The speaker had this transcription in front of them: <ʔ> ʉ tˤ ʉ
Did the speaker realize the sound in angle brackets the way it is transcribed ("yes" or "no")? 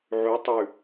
no